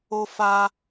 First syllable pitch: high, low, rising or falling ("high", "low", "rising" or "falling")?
high